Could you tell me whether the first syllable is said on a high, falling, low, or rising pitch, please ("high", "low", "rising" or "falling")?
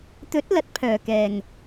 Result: rising